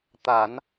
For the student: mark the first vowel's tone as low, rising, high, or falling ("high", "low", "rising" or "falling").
low